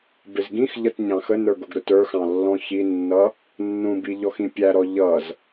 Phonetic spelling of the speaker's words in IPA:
bɪzɡĩxʎʌt ɲɑ̃xənə˞ɡ ʊɡɾʊtə˞xɑ̃ lːɔ̃çinːʌ | nːũbi ʎɔxĩpʲæɾɔ ʎʌz

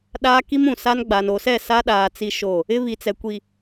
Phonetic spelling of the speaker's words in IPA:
ɗaː˦ki˦mũ˨ sa˦n ɡ͡ba˨no˨sɛ˦˨ sa˦ɗaː˨ t͡si˦ʃo˦˨ | ɪ˦βi˨t͡sɛ˨ kʷi˨

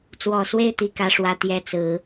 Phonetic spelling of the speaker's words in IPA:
t͡swɔ˨˩swe˥˧ɪ̯ t̪i˥˩kä˥ʂwä˥ t̪jɛ˥t͡sɹ̩˧˥

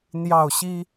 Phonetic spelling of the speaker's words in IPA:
n̪jɑ˥˩ʊ̯ɕi˥

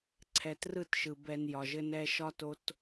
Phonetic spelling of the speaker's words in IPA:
ǀʰɛ˨trɯ˦˨tʃɯ˨ bɛ˨n jɒ˨ʒɘ˦nɛ˦ ʃɒ˦to˦t

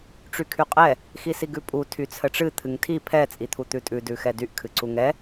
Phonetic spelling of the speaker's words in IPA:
ʈ͡ʂykʰyqʼɛ | xisiɡʉpʼu tʰyt͡sʰəʈ͡ʂɨ t̪ʰɨŋtʰi pʰɛ t͡sʼit̪ʰut̪ʉtʼʉ dʉxɛdyʔ kʰɨǀuŋɛ

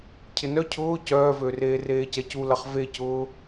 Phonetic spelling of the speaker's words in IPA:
cʰɪnœ cʰʊː cœːvøreː reːcɛculɐχ vecʊː

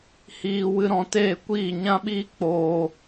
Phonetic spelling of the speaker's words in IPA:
hiː˦wɨ˦ɾɔ̃˦ teː˦˨kʷiː˦˨ ɲã˦ɓiː˦ k͡poː˧

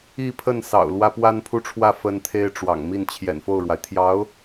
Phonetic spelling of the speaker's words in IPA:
i˥˧pʰə˥˩nsɑ̰˨˩ʊ̯ lwä˥pwa˥npʰu˥˧ʈ͡ʂʰwä˥˩ fə˥nt̪ʰe˥ɪ̯ʈ͡ʂwɑ̰˨˩ŋ mi˥˩nt͡ɕʰjɛ̰˨˩nfo˥˩ʊ̯ɻwa˩ɪ̯ t̪ʰjɑ˧˥ʊ̯

